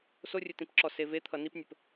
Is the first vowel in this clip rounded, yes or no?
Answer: yes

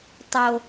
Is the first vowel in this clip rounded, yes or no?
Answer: yes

